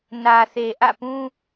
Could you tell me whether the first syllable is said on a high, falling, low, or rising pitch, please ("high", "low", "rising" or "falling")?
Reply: low